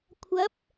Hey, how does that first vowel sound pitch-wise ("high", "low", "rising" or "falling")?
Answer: rising